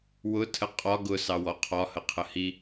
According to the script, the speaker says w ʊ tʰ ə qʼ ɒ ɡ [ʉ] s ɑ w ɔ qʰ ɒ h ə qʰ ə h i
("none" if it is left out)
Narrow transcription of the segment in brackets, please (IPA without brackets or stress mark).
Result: ʊ